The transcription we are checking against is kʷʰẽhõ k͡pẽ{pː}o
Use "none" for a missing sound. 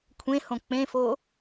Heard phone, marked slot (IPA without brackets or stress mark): f